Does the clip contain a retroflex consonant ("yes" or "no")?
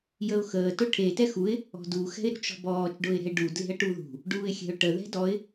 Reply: yes